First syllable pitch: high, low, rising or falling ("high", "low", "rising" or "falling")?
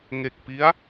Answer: low